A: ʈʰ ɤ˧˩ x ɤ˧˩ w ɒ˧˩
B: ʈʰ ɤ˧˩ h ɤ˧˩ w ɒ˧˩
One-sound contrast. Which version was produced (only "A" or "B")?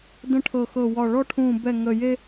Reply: A